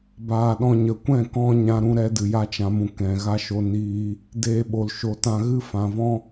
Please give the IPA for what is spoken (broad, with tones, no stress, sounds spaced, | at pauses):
b aː˧ ɗ ɔ̃˧ ɲ ə˨ kʷ ɛ̃˦˨ k ɔ̃˦ ɲ ã˧ ɾ ũ˧ ɾ ɛ˦ d ɨ˨ j a˦ t͡ʃ ã˧ m ũ˧ k ɛ̃˨ ɣ a˦ ʃ o˧ n iː˧ | d eː˧ ɓ o˨ l ʃ o˨ t ã˧ ɣ ɨ˦ f ã˨ v ɔ̃˦